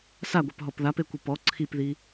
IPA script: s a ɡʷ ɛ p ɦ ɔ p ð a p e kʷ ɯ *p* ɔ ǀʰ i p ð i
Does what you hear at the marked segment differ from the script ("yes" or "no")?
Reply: no